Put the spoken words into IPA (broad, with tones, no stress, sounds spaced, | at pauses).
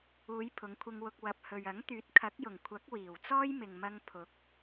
uː˨˧ j pʰ ʊ˨˧ ŋ kʷʰ ɪ˧ ŋ w ʊ˧ k̚ w ɐ˨ p̚ h ɵ˨ ɥ ɐ˨˥ ŋ t̪ yː˨˥ t̚ kʰ ɐ˨˥ k̚ j ʊ˨˩ ŋ kʷʰ ɐ˨˥ k̚ w iː˨˩ w t͡s ɔː˥ j m ɪ˨ ŋ m ɐ˧ ŋ pʰ ʊ˨˥ k̚